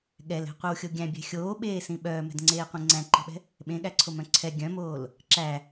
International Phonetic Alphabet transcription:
ɠ ɛ l ɛ̤ qʷ i w xʲ o ɡʲ æ̃ bʲ ɛ̤ xʲ oː ɓ eː s ĩ ɓ œː m ɛ̤ d ŋ͡ǀ eː qʷ ĩ ŋ͡ǀ æ̃ ǃ i̤ ɓ ɛ̤ | ɓ ẽ ɠ æ ǀʰ o m œ̃ ǀʰ ɛ ɡʲ œ̃ m oː l | ǁ æ

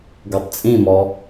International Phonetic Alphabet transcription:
ɡ o tˤ t͡sʼ ĩ m ɔ

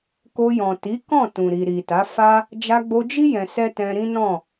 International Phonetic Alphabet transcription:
k o˧ j ɔ̃˨ t i˨˦ k ɔ̃˦˨ t ũ˨ ɾ i˨ ɾ i˨ t a˨˦ f a˦ | d͡ʒ a˧ ɡ͡b o˧ d͡ʒ i˦ j ɛ̃˧ s ɛ˦ t ɛ̃˧ ɾ ĩ˦ n ɔ̃˦˨

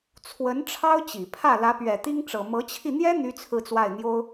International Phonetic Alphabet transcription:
t͡sʰ w ə˧˥ n ʈ͡ʂʰ ɑ˥ ʊ̯ t͡ɕ i˨˩ pʰ ä˥˩ l ä˧˥ p ɥ ɛ˨˩ t̪ i˥ ŋ ʈ͡ʂ ɤ˨˩ m ɤ˧˥ t͡ɕʰ i˧ n̪ j ɛ˥ n̪ y˥ t͡sʰ ɹ̩˥˧ t͡s w a˥˩ ɪ̯ n̪ j o˥ ʊ̯

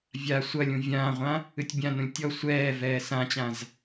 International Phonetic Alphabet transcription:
vʲ a sʷ ɐ lʲ ũ vʲ ãː ʁʷ ã | ɨ tʲ bʲ ã n ũ lʲ tʲ ɔ sʷ ɛː v ɛː s ã t͡ɕ ã z

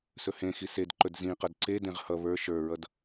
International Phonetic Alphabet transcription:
s ɵ h ẽ x i s e d ǃ ɵ d z ĩ q ʌ d ǀ e d ẽ ʁ h ʌ β ə˞ ʃ ə˞ ɹ ʌ d

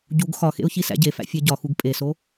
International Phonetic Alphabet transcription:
ɟ u ɡ x ɒ x ḛ ʊ̯ ç i s æ̰ ɟ e f æ̰ fʲ æ ɟ ɒ x u ɡ pʼ e s o

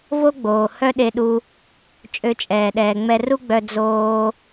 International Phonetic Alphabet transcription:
v o˥ ɡ͡b oː˩ h œ˥ ɗ e˧ ɗ u˧ | t͡ʃʼ ø˧ t͡ʃʼ ɛː˩ ɗ ɛː˩ ŋ͡m ɛ˧ r u˥ ɡ͡b œ˧ d͡z oː˧

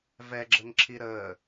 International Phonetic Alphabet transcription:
v ɛ ɡ͡ǁ ə ŋ ǁʰ i ɾ əː

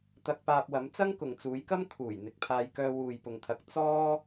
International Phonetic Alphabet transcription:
t̪ ɐ˧ k̚ p aː˧ p̚ w ɐ˨˧ m t͡s ɐ˥ ŋ k ʊ˨ ŋ t͡s uː˨˧ j k ɐ˥ m kʰ uː˨˩ j n̪ ɪ˨˥ k̚ pʰ aː˧ j k œː˧ w uː˨ j p ʊ˨ ŋ t̪ʰ ɐ˨ k̚ t͡s ɔː˥

